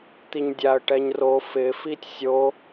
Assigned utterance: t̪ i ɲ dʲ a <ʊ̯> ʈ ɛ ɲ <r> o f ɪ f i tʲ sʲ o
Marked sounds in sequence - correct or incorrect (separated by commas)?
incorrect, correct